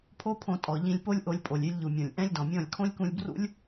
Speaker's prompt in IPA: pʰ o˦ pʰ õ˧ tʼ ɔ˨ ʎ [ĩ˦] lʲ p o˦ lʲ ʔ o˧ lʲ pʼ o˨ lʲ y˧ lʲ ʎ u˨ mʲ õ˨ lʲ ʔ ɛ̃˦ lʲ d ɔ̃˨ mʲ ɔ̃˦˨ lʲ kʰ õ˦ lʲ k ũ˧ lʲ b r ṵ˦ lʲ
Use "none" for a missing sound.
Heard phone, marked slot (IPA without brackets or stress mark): ĩ˧